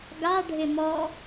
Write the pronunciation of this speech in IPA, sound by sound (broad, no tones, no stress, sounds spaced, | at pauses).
ɡ a ɖʱ ɪ m ɔ